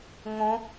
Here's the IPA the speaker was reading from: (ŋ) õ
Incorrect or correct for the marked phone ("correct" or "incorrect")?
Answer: correct